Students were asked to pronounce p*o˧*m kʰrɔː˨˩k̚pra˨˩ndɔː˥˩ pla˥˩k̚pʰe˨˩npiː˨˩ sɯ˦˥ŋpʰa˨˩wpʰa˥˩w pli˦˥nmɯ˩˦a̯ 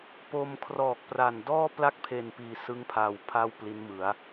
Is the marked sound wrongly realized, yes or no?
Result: no